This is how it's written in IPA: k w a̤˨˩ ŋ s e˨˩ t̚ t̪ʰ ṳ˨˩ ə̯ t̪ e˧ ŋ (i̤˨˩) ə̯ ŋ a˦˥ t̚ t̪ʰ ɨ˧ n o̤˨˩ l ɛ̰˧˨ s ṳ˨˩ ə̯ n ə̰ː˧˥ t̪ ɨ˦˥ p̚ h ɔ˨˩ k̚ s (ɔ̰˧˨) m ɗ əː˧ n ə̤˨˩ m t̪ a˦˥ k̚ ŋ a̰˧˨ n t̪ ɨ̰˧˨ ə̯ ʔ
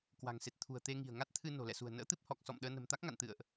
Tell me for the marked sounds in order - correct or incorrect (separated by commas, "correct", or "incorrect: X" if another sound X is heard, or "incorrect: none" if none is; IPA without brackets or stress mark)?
correct, correct